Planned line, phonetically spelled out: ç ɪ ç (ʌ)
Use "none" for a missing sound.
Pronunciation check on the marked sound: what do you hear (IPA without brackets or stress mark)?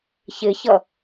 ʌ